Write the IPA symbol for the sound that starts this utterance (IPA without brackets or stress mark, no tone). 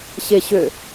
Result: ɕ